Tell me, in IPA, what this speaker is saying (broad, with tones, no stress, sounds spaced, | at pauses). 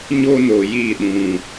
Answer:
ɲ o˧ n o˨ j i˦˨ ɗ ũ˨